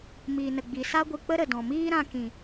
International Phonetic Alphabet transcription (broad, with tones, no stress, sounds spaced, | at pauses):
m iː˨ n ə˨ ɡ͡b i˨ s a˦ ɡʷ ɨ˧ k͡p ə˦ ɾ ə˨ d ɔ̃˨ m iː˦ ɾ ã˧ k ĩ˨